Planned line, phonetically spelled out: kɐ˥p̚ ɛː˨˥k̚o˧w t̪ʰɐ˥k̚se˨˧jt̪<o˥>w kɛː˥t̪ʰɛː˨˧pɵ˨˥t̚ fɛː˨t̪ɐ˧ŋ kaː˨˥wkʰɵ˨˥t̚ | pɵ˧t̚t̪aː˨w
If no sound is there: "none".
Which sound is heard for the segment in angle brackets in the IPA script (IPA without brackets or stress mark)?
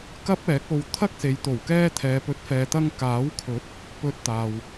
o˨˩